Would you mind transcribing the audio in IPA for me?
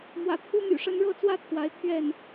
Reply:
m w ä̰˨˩ t̪ʰ u˥ m y̰˨˩ ʂ ə˧˥ n ɻ ɤ˥˧ t͡s w ä˥˩ t̪ʰ w a˧˥ ɪ̯ t̪ʰ ɥ ɛ˥˩ n

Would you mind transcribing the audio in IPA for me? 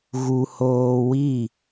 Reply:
ɣ u˨ h oː˨ w i˦˨

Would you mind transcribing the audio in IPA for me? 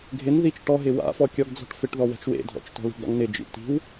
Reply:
ɡʱ ɪ n ð i t͡ʃ ʈ ɔ ɦ ɪ w a̰ f ɔ kʲ ɔ ɡ d͡z ɔ̤ ʈ f ɪ ʈ ð ɔ w ɛ̤ t͡ʃ w ḛ dʱ ɔ̰ t͡ʃ t ɔ̤ l i̤ ɡ ɾ ɔ̰ ŋ n ɪ d͡ʒ ḭ t i̤ w

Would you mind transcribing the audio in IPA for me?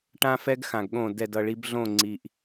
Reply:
ʈ ã˧ f ɛ˧ ɡ x ã˩ ɡ ɠ õ˧˩ d ɛ˧˩ d ʌ˧˩ ɭ i˧ b ɮ õ˧˩ ŋ͡ǀ i˩ ʔ

